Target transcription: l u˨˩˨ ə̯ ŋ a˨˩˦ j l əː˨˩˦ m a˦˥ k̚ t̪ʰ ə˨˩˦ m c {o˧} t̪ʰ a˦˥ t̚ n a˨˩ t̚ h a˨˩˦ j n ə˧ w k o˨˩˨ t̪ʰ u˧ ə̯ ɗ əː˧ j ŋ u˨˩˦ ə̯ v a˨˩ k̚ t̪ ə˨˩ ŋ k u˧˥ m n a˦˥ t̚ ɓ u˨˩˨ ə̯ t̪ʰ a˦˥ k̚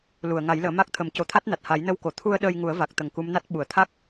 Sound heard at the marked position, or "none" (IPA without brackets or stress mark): o˨˩˦